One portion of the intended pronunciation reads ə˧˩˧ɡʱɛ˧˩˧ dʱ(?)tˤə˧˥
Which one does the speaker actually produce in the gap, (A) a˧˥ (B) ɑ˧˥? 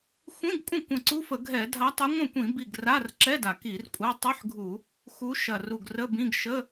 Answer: A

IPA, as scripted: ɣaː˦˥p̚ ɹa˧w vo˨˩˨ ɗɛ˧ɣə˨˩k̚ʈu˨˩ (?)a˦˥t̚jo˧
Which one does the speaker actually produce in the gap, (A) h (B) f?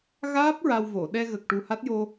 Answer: A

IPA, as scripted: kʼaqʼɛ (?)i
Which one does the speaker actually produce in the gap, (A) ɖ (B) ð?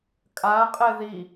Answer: B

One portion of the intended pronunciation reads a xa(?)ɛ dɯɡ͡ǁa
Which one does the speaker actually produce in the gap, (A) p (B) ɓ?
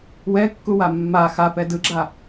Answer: A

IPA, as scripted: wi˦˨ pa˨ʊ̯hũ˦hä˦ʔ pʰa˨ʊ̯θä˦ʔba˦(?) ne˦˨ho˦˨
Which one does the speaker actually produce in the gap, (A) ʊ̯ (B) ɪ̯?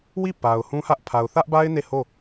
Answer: B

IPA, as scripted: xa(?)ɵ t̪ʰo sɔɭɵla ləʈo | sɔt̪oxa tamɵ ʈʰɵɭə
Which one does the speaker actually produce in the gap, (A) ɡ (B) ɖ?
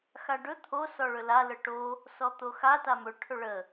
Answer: B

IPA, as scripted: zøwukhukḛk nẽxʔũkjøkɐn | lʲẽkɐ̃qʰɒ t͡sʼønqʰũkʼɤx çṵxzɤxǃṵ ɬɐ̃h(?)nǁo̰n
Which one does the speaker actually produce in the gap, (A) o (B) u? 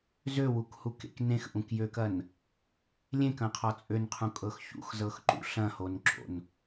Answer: A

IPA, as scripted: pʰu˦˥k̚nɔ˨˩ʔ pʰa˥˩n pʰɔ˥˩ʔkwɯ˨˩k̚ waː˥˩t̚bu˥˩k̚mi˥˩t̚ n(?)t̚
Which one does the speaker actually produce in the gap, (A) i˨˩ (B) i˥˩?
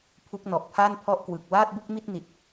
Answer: A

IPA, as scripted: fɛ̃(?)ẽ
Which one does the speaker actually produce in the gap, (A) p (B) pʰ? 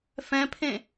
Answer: B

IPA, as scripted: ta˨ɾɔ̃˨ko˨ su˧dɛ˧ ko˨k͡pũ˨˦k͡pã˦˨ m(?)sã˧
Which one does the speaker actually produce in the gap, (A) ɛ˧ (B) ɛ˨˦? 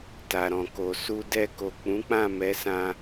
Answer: B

